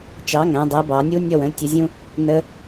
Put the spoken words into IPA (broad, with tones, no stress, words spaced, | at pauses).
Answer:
t͡ʃɑ˩˥ŋæ̃˩˧ dˤɛ˩˥bɑ˩˧nʲu˦˥ nʲɔ˥˨wə̃˩˥ltʲə˩˥zʲũ˦˥ | nə˦˥